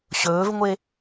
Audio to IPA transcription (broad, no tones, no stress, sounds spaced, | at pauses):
ɕ ɵː v ŋʷ e